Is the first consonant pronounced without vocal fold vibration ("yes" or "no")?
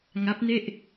no